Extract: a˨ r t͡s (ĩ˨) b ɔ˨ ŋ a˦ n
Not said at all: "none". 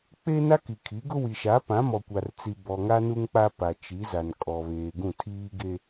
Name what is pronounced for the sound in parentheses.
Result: i˨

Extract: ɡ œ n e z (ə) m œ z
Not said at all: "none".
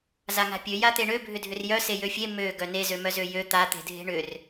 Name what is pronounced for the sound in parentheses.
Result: ø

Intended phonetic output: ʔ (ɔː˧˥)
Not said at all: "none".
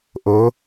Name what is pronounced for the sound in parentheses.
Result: oː˧˥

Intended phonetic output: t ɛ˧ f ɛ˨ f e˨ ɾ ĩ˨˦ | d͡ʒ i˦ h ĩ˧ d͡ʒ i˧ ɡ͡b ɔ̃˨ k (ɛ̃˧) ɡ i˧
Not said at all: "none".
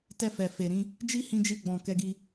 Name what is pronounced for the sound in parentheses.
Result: ɛ˧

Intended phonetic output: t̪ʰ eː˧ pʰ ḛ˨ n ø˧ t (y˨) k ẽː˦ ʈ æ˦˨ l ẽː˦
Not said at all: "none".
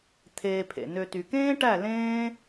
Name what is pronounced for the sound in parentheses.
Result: y˨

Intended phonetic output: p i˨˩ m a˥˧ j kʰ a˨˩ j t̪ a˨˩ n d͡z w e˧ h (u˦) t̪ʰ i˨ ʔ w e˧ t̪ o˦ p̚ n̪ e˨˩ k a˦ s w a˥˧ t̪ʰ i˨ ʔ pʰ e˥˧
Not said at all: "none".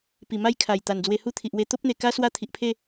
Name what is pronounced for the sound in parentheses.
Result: u˥˧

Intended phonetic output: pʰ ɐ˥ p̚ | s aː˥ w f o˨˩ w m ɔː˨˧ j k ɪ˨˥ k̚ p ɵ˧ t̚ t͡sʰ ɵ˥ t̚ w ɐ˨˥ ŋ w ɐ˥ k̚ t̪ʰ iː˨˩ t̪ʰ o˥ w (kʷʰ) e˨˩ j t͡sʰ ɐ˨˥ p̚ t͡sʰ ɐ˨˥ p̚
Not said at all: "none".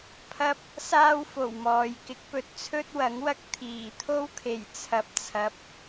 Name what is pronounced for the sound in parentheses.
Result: kʰ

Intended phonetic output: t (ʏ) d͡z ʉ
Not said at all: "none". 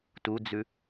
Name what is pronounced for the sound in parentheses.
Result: u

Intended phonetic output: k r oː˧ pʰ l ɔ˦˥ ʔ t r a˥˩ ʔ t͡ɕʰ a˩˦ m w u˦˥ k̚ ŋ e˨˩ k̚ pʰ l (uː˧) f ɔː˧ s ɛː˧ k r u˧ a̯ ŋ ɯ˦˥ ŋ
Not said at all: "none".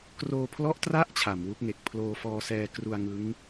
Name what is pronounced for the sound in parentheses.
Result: oː˧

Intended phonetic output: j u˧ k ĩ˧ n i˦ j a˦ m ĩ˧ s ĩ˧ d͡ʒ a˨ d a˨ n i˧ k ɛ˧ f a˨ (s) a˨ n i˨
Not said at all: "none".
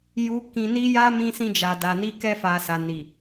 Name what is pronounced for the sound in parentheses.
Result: s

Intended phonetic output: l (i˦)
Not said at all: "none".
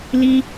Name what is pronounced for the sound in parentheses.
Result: i˦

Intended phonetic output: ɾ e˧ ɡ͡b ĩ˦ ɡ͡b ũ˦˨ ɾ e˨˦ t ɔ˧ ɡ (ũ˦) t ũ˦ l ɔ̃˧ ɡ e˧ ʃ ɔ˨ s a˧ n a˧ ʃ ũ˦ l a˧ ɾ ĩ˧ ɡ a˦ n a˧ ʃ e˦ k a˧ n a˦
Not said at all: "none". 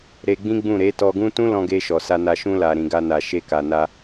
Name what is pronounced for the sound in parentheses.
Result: ũ˦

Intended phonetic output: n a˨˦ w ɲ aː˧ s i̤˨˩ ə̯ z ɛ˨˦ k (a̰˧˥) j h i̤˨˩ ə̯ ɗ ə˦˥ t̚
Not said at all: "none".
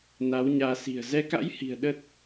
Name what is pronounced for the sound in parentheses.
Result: a̰˧˥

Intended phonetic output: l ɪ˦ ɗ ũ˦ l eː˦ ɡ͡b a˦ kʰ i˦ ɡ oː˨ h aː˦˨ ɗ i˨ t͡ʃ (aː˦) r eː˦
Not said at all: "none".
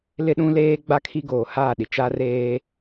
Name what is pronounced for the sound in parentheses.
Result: a˦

